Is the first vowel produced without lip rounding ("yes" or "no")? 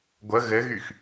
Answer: yes